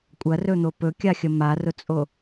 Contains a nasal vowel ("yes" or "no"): no